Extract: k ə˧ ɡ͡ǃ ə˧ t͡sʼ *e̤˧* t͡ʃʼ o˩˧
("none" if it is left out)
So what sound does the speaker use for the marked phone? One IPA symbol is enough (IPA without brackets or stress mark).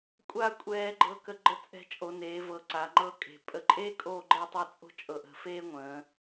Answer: ɛ̤˧